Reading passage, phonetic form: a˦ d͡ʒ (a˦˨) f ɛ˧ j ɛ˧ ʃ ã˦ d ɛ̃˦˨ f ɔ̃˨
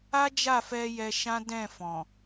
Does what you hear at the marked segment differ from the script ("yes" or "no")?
no